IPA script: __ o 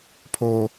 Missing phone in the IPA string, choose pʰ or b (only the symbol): pʰ